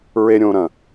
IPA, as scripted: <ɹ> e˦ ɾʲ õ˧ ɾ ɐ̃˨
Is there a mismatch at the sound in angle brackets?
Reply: no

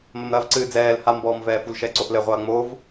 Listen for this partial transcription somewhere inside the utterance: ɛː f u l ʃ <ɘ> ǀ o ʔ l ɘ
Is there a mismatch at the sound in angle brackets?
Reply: yes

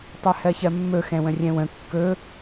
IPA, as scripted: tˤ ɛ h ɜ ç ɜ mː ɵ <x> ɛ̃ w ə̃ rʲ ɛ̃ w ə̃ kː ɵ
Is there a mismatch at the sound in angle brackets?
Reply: no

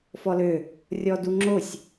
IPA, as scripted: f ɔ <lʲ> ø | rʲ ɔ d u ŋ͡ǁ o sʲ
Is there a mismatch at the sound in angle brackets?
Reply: yes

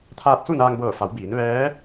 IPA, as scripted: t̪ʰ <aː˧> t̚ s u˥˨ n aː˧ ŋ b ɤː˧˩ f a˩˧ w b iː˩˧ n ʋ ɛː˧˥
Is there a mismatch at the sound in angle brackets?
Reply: no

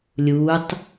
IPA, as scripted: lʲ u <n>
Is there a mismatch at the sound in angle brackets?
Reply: yes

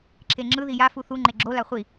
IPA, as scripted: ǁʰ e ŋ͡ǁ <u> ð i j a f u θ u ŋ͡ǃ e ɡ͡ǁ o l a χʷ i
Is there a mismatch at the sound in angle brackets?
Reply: yes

